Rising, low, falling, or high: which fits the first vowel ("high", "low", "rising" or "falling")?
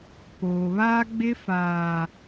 low